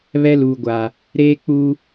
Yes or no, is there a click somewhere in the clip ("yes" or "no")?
no